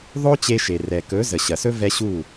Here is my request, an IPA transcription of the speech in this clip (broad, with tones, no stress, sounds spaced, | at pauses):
ðˤ o˦ t͡ɕ e˧ ʃ e˨ r ɛ˨ k ɵ˨˦ z ə˨ ɕ ɐ˨ s ɵ˦ v ɛ˦ ɕ u˦˨